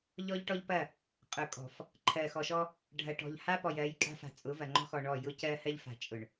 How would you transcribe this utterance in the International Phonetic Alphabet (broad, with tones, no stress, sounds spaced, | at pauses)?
ʎ ɔ˦ ʎ ʈ ɔ˦ ʎ p ɐ˦˨ | qʼ ʊ˨ kʼ ɔ̤˨ f | ǃʰ ɜ˨ x ɔ˨ ʃ ɔ˦ | ɖʱ ɐ˨ ʈ ɔ̤˨ ʎ h a˦ p ɔ˨ j ɜ˨˦ j kʼ a̤˦ f a̤˨ t͡sʼ ʊ˨˦ v ɐ˨ ŋ͡ǃ ɔ̤˦ x ɔ˨ ɳ ɔ˦˨ j ʊ˦ c ɜ˦ h ɜ˦ ʎ f a̤˨ t͡ʃʼ ʊ˨ ɳ